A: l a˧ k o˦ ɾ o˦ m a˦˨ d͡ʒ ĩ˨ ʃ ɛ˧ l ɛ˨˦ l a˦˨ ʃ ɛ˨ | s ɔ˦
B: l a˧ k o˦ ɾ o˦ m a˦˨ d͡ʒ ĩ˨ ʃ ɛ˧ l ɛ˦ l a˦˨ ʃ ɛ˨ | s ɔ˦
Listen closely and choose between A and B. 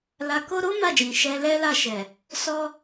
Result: B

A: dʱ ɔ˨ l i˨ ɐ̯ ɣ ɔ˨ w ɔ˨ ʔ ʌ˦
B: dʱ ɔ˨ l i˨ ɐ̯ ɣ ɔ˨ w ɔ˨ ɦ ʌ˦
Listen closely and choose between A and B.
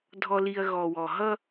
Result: B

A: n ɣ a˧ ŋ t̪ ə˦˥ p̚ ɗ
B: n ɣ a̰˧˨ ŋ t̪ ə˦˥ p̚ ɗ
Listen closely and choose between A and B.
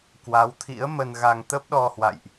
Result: A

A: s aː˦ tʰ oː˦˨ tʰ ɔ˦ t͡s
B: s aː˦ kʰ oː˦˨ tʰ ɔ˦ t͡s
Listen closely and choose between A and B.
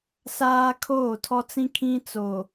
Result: B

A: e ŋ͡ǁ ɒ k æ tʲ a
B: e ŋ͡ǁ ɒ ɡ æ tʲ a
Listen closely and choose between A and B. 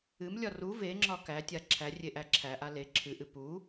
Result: A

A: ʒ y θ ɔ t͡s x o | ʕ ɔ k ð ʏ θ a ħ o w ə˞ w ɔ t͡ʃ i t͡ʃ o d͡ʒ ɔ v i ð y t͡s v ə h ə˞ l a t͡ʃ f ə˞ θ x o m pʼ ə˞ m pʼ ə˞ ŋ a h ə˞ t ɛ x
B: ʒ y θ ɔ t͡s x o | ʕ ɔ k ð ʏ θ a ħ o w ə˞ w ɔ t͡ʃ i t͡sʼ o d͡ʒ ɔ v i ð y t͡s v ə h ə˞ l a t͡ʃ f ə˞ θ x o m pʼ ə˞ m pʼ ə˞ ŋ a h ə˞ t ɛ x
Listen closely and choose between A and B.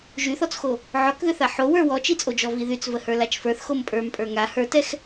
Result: B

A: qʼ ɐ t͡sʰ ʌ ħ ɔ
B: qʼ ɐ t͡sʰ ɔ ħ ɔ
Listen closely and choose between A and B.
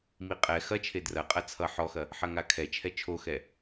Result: A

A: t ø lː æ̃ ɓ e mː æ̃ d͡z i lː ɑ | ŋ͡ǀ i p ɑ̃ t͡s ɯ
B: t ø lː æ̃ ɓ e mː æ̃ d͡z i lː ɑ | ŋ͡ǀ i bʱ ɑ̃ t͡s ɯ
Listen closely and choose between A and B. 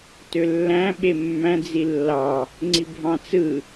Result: B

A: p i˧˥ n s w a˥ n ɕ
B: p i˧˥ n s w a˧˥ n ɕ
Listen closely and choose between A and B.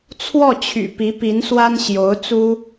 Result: A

